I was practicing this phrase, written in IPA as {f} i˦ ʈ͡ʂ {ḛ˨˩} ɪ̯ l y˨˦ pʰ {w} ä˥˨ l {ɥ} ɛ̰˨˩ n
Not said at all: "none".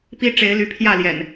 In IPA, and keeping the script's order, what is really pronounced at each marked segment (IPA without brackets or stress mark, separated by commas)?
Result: p, e˨˦, j, j